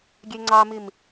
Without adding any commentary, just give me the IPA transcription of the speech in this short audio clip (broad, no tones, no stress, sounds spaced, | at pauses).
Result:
ɡʲ e ŋ͡ǀ ɑ m i m